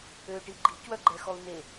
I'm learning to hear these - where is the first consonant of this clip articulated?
retroflex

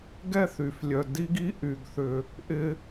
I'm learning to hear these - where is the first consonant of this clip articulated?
velum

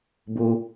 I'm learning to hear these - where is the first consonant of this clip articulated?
lips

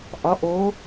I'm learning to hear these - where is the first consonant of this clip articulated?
throat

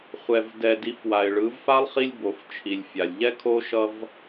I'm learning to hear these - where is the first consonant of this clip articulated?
uvula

